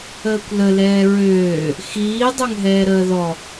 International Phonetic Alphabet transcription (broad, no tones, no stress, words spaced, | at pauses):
əːkʷləlɛː ɹøː | xiː dˤøŋɦɛːɾəːðɔ